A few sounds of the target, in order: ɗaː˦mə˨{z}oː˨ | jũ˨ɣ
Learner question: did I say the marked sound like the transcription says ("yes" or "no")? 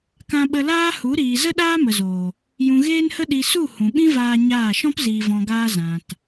yes